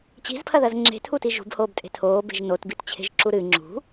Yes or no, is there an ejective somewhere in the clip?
yes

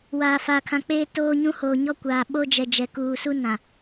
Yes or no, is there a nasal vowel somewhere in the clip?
yes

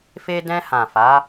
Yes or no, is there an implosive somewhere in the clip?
no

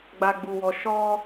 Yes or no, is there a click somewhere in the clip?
no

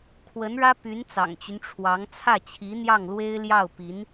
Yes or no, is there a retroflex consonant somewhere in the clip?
yes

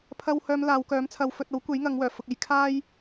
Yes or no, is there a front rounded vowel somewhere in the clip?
yes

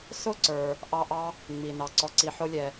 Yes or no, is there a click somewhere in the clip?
yes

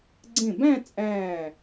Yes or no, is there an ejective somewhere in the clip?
yes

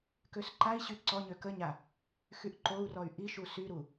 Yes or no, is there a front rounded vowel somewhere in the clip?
yes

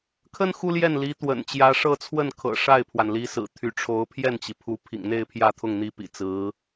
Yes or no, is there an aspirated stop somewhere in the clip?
yes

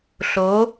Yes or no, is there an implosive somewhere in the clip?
no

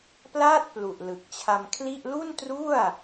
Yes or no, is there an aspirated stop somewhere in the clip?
yes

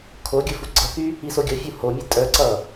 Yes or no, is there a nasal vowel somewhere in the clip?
no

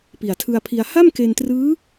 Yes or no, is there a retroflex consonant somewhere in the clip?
no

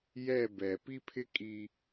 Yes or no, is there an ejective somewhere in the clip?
yes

